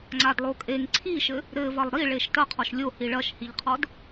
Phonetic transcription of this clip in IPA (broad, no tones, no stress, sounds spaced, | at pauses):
ŋ͡ǀ a d lˠ o kʼ e ŋ ǀʰ i ʃ ɘ | ɾ ɘ v ɐ lˠ ɾ i ɭ e ʃ t ɐ qʰ ɔ ʃ lʲ o h i ɭ ɐ ʃ h i ʎ qʰ ɔ d